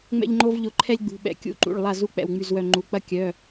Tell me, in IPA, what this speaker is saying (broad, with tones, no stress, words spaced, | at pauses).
ŋ͡mɛ̰˥ʎŋ͡ǃo˥v ʎʊ˦˨ǃʰɛ˥lʲɡ͡bṳ˩˧˩ ɓɛ̰˦˨ kʲṵ˦˨ǃṵ˩˧˩ɭ lˠa˦˨zu˦˨ k͡pɛ̰˦˨wŋ͡my˦˨zwœ˦˨ ŋ͡ǃu˩˧˩k͡pɐ˥ kʲœ˩˧˩